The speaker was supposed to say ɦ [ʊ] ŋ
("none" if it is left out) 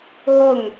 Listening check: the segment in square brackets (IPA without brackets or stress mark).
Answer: ʊ